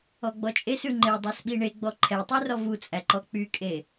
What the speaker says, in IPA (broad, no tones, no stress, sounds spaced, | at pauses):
ɔ ɡ͡b ɔ t͡ʃʼ e s ʉ ŋ͡ǃ e dˤ æ s ɓ i ɳ e ɡ͡b ɔ ǃʰ ɛ tˤ y r ɔ v u t͡sʼ æ ǃ ɔ k͡p y kʼ e